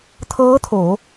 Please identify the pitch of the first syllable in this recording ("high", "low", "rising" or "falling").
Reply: rising